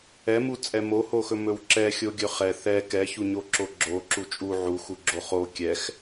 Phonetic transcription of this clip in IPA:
ɛ m u t͡sʼ ɛ m o h o x ɵ m ɵ w ǁ ɛ xʲ o ɡʲ ɵ χ ɛ θ ɛ k ɛ ç u ɲ o ǁ o ɡ͡ǁ o ǁ u t͡ʃʼ u ʕ u x u ɡ͡ǁ o χ o kʲ ɛ x

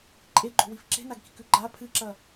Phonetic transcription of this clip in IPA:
ǃʼ e ɡ͡ǃ o̤ w i f ǁ e̤ n a ɡ k i̤ k ʉ ɡ͡ǃ a pʰ ɨ ǁ ɐ

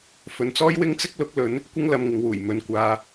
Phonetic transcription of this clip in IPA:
f ɵ˨˧ n t͡s ɔː˥ j w ɪ˥ ŋ t͡s ɪ˥ k̚ l ʊ˨˥ k̚ l ɵ˨˧ n | kʷ ɪ˥ ŋ l ɐ˧ m ŋ ɪ˨˧ ŋ w uː˨˩ j m ɵ˨ n kʷ aː˧

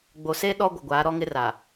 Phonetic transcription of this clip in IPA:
ɡ͡b o˨ s e˦ ɗ ɔ˦ ɡʷ ɪ˨ ɡʷ aː˨˦ ɾ ɔ˦ ŋ ɪ˦ r aː˨

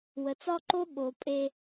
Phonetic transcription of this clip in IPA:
w ə˨ t͡s ɒ˦ ǃ o˦ ɓ o˨ pʼ e˦

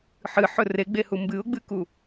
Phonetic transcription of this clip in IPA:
ħ ɨ ħ ɵ r e ɡ͡b e h u m b ɨ ʊ̯ ɡ͡b ɨ k u

